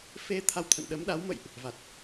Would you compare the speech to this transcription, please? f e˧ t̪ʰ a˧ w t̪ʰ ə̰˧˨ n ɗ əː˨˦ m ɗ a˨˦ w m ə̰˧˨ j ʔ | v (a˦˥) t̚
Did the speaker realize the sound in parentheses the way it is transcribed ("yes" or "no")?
no